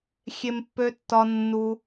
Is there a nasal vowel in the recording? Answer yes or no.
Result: no